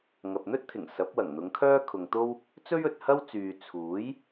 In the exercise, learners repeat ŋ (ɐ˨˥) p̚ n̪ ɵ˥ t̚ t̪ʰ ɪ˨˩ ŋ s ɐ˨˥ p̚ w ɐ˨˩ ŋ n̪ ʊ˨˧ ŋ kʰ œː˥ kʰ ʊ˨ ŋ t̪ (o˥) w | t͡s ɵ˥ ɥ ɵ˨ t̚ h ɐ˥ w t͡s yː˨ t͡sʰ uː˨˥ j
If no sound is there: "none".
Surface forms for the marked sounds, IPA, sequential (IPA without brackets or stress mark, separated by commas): ɐ˨, o˥